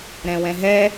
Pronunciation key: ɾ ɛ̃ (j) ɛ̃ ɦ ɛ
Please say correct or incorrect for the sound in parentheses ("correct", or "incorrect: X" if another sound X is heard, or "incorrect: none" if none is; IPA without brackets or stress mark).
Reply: incorrect: w